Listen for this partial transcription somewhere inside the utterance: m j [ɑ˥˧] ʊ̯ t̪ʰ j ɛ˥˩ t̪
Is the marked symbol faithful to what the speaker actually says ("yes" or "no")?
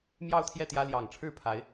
yes